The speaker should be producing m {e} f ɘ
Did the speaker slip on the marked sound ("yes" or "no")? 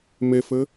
no